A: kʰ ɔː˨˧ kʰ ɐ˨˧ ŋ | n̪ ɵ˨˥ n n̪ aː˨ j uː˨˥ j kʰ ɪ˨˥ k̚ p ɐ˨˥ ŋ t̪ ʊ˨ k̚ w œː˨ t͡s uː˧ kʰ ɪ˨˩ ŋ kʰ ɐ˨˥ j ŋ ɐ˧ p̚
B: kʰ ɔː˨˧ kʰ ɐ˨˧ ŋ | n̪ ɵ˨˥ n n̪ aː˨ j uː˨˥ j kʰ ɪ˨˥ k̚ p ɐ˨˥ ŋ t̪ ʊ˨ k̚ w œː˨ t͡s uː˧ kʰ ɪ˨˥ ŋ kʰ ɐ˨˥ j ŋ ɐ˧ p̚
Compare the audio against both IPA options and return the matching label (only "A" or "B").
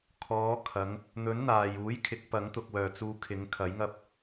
B